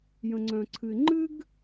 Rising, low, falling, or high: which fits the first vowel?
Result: low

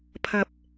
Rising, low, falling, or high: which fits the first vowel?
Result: rising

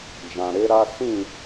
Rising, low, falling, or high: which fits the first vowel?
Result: low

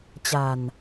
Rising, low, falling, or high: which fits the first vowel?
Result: low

